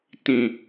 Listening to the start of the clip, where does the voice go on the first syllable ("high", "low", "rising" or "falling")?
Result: low